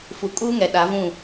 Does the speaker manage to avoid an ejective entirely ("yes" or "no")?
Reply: no